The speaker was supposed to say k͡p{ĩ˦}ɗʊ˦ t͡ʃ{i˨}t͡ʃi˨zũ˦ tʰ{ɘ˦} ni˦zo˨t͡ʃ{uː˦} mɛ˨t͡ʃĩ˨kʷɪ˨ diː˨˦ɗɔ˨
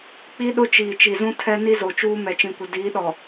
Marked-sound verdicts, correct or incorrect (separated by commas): incorrect, incorrect, incorrect, correct